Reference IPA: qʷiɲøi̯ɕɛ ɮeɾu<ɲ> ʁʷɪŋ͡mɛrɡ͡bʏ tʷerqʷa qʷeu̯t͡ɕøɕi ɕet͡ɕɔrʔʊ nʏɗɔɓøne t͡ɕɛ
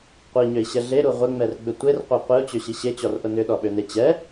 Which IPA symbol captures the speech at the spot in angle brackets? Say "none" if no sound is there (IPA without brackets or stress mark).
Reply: none